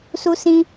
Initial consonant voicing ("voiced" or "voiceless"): voiceless